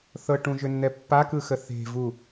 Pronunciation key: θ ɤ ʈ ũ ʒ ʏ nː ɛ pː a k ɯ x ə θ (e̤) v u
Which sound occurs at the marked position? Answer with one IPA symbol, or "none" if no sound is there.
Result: e̤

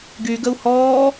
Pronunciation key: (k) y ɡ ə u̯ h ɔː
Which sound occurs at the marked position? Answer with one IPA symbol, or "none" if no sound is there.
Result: ɡ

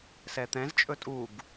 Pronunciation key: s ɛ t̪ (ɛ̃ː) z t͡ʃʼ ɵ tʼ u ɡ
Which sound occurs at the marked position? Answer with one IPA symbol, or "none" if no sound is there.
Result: ɛ̃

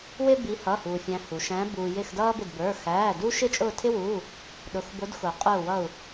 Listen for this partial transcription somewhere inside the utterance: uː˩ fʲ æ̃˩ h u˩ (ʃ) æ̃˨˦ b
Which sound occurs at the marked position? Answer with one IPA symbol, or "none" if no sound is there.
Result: ʃ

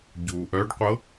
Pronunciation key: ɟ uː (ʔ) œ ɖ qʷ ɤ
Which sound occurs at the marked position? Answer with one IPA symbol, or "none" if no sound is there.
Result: ʔ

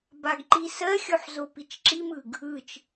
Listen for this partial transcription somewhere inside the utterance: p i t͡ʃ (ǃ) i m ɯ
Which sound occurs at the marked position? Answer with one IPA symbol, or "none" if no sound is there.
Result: ǁ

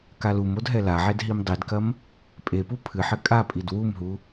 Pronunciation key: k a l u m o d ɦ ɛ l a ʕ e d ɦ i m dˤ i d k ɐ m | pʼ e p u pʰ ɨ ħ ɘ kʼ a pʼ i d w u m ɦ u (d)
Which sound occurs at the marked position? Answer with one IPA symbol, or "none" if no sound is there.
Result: none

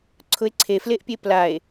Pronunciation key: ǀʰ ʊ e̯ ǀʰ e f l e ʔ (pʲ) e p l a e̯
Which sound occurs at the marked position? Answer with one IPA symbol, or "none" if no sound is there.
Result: pʲ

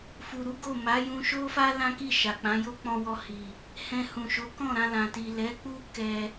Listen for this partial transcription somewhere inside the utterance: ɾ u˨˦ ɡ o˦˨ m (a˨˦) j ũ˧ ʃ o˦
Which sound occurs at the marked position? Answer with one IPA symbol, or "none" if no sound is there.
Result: a˨˦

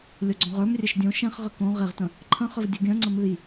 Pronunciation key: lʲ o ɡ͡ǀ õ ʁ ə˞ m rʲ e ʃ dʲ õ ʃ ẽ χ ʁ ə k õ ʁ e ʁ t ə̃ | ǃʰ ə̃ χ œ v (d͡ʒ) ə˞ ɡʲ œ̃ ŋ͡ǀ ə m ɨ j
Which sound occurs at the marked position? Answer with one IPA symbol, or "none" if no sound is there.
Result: dʲ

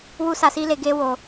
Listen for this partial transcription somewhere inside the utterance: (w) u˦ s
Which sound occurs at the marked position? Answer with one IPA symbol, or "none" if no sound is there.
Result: w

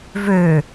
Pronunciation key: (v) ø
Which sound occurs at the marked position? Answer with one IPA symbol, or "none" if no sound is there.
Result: v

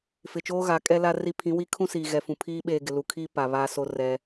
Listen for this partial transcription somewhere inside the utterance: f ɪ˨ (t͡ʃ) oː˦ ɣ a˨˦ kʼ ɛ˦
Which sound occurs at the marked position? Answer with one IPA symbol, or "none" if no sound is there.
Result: t͡ʃ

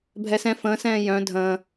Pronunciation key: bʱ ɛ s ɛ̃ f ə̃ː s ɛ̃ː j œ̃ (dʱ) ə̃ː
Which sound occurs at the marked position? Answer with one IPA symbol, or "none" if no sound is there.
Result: dʱ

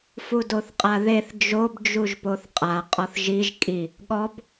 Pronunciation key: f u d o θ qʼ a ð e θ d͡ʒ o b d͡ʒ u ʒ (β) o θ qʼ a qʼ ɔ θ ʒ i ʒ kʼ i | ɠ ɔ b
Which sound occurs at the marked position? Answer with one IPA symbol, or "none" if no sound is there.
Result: p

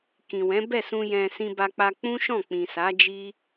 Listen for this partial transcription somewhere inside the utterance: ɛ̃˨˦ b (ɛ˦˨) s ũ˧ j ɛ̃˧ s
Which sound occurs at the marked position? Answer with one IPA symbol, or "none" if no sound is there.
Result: ɛ˦˨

